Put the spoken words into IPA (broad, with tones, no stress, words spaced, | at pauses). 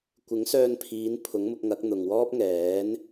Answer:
kʷɪ˨˥ŋsœː˧npʰiː˨˧n pʰʊ˨˥ŋmʊ˧k̚ŋɐ˨˥k̚ n̪ʊ˨ŋwɔː˥p̚ŋɛː˨˥n